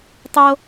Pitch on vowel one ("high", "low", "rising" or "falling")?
high